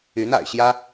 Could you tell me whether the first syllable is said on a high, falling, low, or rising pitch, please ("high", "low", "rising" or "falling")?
rising